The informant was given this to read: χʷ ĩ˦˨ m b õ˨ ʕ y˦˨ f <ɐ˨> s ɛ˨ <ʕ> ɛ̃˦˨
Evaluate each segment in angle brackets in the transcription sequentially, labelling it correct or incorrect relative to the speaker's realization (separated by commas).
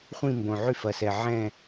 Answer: correct, correct